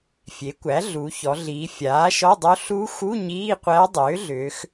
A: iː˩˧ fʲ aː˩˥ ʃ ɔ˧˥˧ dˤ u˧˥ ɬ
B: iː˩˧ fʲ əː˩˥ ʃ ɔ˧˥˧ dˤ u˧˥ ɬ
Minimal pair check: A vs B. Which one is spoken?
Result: A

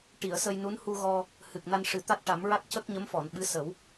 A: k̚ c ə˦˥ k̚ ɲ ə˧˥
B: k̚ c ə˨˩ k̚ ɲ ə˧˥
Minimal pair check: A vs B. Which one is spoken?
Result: A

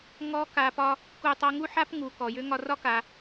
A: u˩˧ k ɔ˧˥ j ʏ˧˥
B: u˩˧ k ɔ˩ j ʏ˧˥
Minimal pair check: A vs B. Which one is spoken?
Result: B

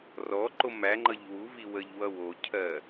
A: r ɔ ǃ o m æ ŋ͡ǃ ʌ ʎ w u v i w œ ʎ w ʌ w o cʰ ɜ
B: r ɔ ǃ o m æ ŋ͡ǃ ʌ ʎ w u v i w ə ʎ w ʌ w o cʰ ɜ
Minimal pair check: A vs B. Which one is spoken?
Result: B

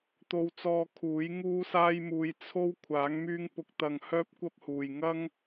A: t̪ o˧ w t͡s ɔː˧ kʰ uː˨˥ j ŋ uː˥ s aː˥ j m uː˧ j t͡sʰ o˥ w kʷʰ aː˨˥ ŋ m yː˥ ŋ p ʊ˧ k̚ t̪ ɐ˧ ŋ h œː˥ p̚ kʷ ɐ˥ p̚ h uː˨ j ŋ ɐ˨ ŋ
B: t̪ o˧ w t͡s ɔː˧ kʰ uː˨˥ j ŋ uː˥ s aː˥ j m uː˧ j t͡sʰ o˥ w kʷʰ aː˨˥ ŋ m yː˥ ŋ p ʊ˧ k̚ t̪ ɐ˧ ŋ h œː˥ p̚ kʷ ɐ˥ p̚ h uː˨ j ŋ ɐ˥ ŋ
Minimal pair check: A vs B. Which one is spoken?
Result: B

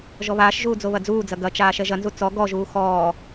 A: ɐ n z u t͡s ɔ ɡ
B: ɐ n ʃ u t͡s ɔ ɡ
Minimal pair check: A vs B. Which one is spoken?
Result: A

